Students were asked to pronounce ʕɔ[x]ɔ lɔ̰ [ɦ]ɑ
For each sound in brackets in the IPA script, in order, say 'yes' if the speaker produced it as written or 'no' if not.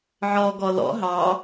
no, yes

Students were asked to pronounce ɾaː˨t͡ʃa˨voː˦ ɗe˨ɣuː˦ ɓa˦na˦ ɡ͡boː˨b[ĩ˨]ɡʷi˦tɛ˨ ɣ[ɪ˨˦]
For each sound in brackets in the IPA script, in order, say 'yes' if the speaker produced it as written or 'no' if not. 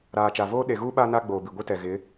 no, yes

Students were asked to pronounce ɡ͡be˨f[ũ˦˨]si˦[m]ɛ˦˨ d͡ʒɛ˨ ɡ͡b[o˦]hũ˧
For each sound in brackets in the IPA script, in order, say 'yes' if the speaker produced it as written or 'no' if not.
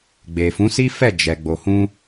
no, no, no

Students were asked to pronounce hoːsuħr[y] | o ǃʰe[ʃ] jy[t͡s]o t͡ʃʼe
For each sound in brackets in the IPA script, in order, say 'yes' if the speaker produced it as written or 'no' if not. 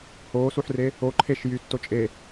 no, yes, no

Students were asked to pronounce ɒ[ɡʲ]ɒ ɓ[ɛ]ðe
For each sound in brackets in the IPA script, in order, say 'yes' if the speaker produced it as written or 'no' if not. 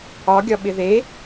yes, no

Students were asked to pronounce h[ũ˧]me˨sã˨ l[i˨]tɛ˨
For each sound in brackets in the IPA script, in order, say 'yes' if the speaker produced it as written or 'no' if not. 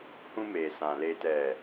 yes, no

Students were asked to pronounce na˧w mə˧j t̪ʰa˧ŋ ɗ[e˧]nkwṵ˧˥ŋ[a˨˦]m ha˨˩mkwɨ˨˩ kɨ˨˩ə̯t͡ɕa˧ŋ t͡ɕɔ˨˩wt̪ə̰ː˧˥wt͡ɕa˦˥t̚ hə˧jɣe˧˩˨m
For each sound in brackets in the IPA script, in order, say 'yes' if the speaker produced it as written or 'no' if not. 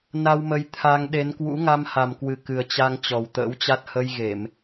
no, no

